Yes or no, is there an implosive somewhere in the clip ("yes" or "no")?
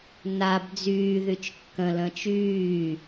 no